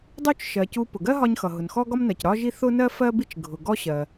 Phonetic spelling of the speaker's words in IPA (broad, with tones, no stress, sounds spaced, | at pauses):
dˤ u˥ t͡ʃ ʃ ɜ˩ c u˧ p ʊ˩ ɡ ɜ˥ ɦ ɒ˧ ɲ x ʌ˩ ɦ ʊ˩ n x ɔ˥ ɡ ɒ˥ m n ɜ˩ c ɾ ɒ˥ ʒ i˥ θ ʊ˥ n ɜ˥ f ɜ˥ b i˥ t͡ʃ ɡʱ ʊ˩ ɡ ɔ˥ ɕ ɜ˩